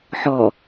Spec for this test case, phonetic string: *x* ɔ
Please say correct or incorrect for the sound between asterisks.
incorrect